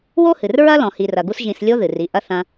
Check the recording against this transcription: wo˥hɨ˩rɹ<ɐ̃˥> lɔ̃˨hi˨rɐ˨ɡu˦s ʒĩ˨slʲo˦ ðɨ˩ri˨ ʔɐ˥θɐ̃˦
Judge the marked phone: incorrect: ɐ˥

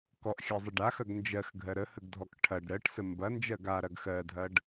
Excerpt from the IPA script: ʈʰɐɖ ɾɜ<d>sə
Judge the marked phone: incorrect: ʈ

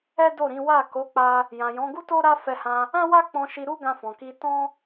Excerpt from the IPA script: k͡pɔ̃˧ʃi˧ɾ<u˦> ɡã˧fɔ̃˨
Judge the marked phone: correct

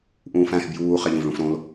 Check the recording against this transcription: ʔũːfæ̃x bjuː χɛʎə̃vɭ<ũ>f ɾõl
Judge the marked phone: correct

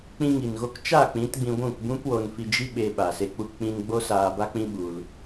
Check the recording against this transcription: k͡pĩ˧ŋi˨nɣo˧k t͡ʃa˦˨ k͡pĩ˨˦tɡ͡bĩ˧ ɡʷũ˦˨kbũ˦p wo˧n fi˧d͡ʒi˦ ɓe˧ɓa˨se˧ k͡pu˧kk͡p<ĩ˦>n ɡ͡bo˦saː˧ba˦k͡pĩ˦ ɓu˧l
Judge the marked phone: incorrect: ĩ˧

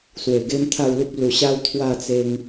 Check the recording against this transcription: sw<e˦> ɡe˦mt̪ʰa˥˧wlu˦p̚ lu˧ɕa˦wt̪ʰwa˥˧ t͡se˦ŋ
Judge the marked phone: incorrect: e˨˩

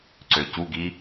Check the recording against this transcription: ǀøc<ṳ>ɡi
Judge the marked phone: incorrect: u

